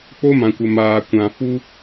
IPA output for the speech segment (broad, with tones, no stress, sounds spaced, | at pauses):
k͡p o˦ m ã˧ kʷ ə˧ m aː˧ kʷ ã˧ f u˦